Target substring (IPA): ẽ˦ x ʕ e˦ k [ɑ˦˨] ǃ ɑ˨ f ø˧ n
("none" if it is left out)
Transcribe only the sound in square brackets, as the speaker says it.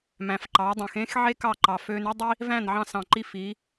ɑ˦˨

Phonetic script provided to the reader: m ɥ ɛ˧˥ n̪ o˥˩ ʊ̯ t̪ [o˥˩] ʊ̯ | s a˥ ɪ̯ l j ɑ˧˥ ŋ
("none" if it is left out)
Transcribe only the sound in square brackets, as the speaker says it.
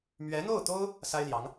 o˥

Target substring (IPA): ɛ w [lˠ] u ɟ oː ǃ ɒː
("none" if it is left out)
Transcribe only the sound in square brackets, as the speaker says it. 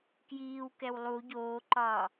lˠ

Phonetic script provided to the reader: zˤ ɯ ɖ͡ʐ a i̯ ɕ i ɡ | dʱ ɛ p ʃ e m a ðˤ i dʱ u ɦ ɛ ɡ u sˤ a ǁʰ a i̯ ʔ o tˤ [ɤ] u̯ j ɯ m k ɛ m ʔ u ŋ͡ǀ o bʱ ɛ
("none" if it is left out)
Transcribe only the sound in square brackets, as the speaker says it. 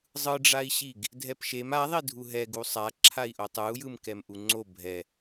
ɯ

